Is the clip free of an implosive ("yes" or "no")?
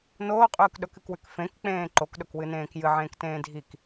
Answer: no